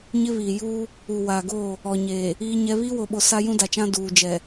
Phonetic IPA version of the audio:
ɲɪ˦βiː˨ juː˦ | u˨waː˨ɡoː˦˨ | ɔ˨ɲeː˨ | iː˦ɲɛ˦ βiː˦wo˨ɓo˨ sa˦jũ˦da˨t͡ʃã˦ duː˨d͡ʒɛ˨

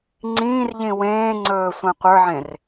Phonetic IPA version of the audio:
ŋ͡ǀĩːrʎĩ wẽːŋ͡ǀɵːsʷã qʷə˞ʕẽr

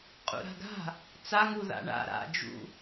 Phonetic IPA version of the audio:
qʼṵɾa̤ɡa̤ | t͡saŋu ða̰ɳa̰ ɾa̰ d͡ʒṵ

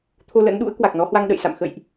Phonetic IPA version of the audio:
t̪ʰo˧lə̰˧˥nɗṵ˧˥ə̯ kwa˨˩k̚nɔ˨˦hwa˧ŋ ɗə̰˧˨jsa̰˧˨m xə̰˧˨jʔ

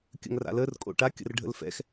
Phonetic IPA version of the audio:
kʲə̰ŋra̰lər kʼo̰ʈa kʲə̰rɖʱə̰lfɛ̰x

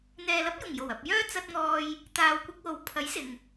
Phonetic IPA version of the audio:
n̪ɛː˨lɐ˨˥p̚jʊ˨˩ŋjo˨˩w ɐ˨p̚jœː˥ t͡sɐ˧t̚ŋɔː˧j | t̪aː˨wkʷɪ˧k̚wo˨˥w pʰɐ˨˥j sɪ˨ŋ

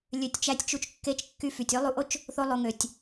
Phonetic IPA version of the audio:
lʲø˧tʲt͡ʃæ˦tʲt͡ʃu˦t͡ʃ kːe˦t͡ʃkːy˦ fy˨tʲø˦lˠu˧ʔo˦t͡ʃ | θo˦lˠo˧ŋø˨tʲ

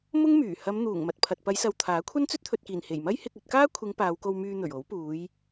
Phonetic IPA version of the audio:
mʊ˥ŋmyː˨˩ hɐ˨˧mn̪uː˨˩ŋ mɐ˨t̚pʰɐ˨t̚ pɐ˨˧jsɐ˨w t̪ʰaː˨˥kʷʰɐ˥n t͡sɵ˥t̚t̪ʰɵ˨t̚kiː˨˩n he˨˩jmɐ˥j hɪ˧k̚ɵ˧t̚kaː˥kʷʰɪ˨˧ŋ paː˨˧wko˧wmyː˧ n̪ɵ˨˩ɥo˨˥w puː˨˧j

